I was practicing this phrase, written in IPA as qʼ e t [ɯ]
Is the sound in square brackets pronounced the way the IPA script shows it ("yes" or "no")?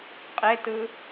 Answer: yes